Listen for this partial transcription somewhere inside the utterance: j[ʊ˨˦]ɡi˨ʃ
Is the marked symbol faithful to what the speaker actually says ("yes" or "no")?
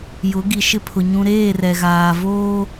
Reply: yes